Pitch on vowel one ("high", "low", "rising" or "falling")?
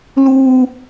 high